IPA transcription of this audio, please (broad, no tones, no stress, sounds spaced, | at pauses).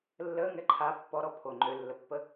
lː əː ŋ ɛ ǃʰ a pː ɔ ɾ ɔ pʰ o ŋ͡ǃ ø lː ə pː ə